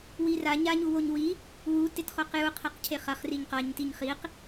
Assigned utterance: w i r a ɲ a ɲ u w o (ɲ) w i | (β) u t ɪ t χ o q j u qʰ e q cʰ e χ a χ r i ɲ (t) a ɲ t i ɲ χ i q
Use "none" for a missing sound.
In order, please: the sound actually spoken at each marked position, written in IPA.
ɲ, w, q

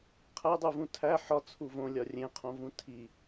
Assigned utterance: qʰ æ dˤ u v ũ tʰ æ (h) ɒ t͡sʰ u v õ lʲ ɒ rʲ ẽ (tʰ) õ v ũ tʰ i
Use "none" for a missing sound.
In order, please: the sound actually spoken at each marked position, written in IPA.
ħ, qʰ

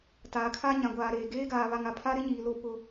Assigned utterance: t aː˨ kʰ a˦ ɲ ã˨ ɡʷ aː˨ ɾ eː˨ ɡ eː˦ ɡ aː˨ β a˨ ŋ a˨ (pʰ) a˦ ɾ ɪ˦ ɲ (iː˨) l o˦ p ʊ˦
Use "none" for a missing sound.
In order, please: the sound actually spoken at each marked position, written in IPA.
pʰ, iː˨

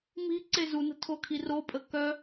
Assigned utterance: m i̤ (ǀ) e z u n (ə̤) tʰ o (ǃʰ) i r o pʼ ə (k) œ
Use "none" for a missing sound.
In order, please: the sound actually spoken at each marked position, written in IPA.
ǀ, ə̤, kʰ, k

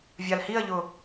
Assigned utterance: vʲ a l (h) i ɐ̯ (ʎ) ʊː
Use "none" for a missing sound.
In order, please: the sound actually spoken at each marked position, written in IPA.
h, ʎ

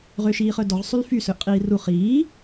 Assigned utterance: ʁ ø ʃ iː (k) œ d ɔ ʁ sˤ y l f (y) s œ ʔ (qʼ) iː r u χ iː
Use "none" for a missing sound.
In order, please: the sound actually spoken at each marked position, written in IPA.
χ, y, qʼ

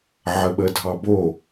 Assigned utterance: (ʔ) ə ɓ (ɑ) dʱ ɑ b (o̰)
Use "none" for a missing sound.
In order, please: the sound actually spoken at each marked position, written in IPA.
ʕ, ə, o

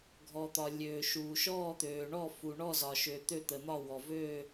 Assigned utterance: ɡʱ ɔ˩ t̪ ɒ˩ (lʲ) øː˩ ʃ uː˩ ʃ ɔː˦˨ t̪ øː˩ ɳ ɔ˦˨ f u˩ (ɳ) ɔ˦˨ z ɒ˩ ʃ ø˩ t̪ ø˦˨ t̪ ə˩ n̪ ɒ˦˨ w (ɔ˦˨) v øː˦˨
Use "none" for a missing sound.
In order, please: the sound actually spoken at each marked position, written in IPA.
lʲ, ɳ, ɔ˩

